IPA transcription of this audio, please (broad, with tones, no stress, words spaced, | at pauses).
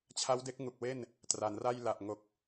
t͡ɕʰa˦˥wde˦˥k̚ ŋu˨˩k̚we˥˩n | tra˩˦nra˥˩jla˨˩ʔ ŋo˨˩k̚